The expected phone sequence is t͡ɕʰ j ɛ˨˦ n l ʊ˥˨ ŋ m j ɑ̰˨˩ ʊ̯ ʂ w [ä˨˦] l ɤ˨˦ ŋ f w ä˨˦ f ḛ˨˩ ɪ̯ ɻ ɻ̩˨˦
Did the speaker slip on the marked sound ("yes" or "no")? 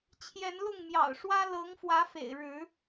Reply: yes